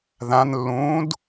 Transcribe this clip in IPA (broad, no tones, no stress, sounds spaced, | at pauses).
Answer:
ð ã n lː ũː d